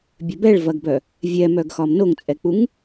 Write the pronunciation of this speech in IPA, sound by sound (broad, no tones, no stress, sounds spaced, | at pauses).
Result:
bʲ œ b ɛ ɭ v ɐ ɡ b œ | vʲ ɛ m œ ɡ x ɒ m n o ŋ t͡sʼ ɛ k͡p u ŋ